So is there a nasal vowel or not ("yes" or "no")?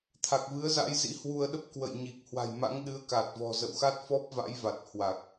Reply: no